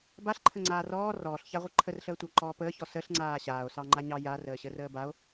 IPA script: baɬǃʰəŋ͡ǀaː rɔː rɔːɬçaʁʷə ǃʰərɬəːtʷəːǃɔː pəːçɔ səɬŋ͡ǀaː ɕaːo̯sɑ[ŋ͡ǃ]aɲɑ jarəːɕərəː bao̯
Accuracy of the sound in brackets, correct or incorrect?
correct